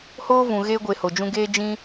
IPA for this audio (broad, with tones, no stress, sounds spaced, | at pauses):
h oː˦ v ũ˨ ɣ e˧ ɡʷ e˨ h o˨ d͡ʒ ũ˧ ɡ eː˦ d͡ʒ ĩ˦